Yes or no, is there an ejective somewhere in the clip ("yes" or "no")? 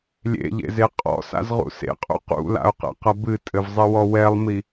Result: yes